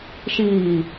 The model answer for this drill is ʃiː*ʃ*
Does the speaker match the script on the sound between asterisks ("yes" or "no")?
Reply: no